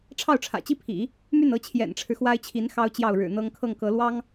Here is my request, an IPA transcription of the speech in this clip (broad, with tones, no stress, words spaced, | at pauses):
ʈ͡ʂʰɑ˥˩ʊ̯ʈ͡ʂʰä̰˨˩t͡ɕi˥pʰḭ˨˩˦ | my˥˩nɤ˧˥ t͡ɕʰjɛ̰˨˩nʈ͡ʂʰɻ̩˦xwa˥ɪ̯t͡ɕʰi˧˥n xɑ˥ʊ̯t͡ɕjɑ˥˩ʊ̯ ɻɻ̩˨˩n̪ɤ˥ŋ kʰɤ˥˩ŋkɤ˧˥lwɑ˥ŋ